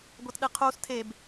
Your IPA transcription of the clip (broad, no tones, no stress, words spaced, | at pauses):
ɡʷatɗɨqʰus tʰeb